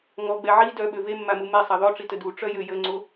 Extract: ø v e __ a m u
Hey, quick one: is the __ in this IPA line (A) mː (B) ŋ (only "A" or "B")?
A